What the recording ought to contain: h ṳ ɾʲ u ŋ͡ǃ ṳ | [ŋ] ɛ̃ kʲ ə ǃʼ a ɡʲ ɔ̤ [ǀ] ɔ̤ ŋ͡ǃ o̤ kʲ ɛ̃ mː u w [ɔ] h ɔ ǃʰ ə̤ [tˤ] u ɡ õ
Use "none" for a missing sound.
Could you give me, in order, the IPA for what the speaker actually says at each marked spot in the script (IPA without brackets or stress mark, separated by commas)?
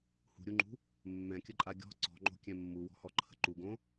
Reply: mː, ǀ, ɔ̤, ǃ